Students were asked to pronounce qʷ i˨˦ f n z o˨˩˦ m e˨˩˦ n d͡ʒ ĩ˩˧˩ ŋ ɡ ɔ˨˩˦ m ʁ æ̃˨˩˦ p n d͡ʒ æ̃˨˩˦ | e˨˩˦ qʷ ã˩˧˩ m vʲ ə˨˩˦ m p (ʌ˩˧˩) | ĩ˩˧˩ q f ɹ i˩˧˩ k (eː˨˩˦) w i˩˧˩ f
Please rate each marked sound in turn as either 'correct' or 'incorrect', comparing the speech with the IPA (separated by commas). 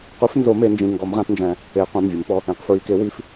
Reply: incorrect, incorrect